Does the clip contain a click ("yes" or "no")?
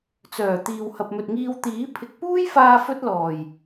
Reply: no